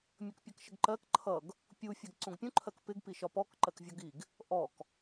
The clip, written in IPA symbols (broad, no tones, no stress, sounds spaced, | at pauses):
mʲ ʌ k pʲ ʌ k ʃ ə ɡ ǃ ɜ k ǃʰ ʌ ɡ | pʲ u fʲ æ ɡ ǀ ũ ɡ pʲ ũ ǃʰ ɜ k p ɪ ɡ p i ʃ ɒ p ɔ k ǃ ɜ k vʲ ɔ ɡ i ɡ | ʔ ɔ k